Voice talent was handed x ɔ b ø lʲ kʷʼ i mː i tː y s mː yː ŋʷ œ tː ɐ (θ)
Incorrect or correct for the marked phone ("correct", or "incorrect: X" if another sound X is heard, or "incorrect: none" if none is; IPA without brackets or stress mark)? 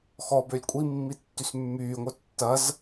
incorrect: z